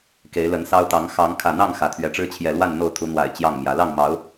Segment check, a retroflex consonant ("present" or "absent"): present